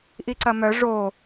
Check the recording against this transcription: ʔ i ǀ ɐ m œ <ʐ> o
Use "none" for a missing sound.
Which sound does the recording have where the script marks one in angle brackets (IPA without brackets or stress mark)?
ʐ